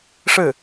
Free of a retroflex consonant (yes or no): no